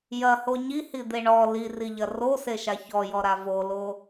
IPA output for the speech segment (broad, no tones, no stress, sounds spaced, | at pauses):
j ɐ h o ɲ i h i d̪ e ɳ ɔ l i r i ʎ ɐ r o s e ʃ a ç ɔ j ɔ ɾ a v o l o